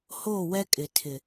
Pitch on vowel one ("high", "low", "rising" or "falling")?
falling